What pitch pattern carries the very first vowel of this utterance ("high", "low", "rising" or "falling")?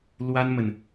high